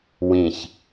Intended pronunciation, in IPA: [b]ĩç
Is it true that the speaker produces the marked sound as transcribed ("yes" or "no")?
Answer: no